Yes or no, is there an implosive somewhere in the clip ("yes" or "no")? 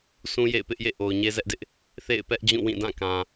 no